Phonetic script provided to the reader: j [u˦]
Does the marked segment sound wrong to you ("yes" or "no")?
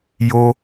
yes